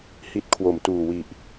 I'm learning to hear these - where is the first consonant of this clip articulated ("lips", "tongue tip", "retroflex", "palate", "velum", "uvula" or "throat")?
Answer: throat